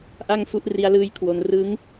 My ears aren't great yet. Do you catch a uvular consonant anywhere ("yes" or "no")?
no